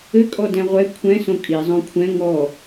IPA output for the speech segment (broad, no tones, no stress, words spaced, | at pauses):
ɘkʼɔdɛ̃ ʁʷɛ kʷʰɛ̃ sõkʼi zˤõkʷʰɛ̃ ŋɔ